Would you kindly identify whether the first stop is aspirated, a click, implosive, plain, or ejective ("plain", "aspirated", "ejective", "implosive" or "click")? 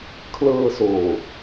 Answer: aspirated